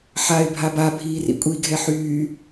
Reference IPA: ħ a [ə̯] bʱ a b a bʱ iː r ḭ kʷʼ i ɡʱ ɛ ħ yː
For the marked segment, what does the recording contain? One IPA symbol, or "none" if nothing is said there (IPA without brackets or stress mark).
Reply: ɪ̯